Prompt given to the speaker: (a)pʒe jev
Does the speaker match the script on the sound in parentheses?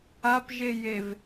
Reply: yes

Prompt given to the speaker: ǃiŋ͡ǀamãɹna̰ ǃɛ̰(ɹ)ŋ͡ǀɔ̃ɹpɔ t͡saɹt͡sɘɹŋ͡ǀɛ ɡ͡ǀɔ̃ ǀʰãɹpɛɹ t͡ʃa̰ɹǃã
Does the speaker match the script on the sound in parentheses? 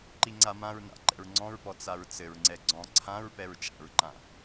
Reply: yes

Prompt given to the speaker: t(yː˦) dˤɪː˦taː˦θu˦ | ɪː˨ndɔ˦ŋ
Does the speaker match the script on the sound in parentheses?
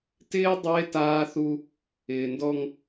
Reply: no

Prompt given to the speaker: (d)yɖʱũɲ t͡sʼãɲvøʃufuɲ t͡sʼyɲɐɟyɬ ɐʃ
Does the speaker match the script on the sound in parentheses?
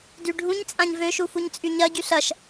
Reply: yes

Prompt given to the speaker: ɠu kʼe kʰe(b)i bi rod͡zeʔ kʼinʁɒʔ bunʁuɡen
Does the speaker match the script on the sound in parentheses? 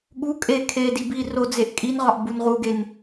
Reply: no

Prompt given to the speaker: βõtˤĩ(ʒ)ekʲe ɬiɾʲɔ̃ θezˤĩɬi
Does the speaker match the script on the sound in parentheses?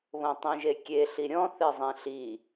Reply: yes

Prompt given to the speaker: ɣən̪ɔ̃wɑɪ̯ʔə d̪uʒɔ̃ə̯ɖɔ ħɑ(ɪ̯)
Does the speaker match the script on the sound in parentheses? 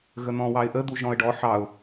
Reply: no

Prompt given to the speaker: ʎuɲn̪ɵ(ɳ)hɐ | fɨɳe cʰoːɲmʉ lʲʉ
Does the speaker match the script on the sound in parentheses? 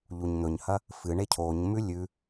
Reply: no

